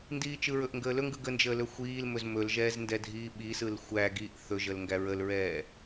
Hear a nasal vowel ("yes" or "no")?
no